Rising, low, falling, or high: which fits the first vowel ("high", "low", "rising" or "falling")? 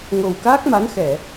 low